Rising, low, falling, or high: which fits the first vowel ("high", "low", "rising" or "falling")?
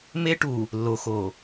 high